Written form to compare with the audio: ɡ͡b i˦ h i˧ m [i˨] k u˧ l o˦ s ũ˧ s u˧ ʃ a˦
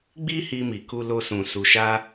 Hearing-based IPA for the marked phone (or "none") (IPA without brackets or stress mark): i˨